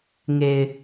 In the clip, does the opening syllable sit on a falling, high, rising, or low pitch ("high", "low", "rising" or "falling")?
low